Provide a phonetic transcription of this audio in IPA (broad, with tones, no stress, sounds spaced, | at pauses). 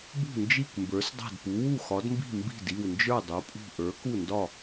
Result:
b ṳ˥˩ n d͡ʒ i˥˩ k m b ə˞˩˥ s dˤ a̤˥˩ d p u˩˥ w u˥˩ x ɒ˩˥ d m b i̤˥˩ m b i̤˥˩ d i˥˩ w n d͡ʒ ə˞˥˩ dˤ u˩˥ pʼ ṳ˥˩ ʔ ə˞˩˥ k u˥˩ n d ɒ˥˩